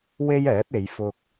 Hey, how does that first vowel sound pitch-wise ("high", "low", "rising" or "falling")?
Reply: high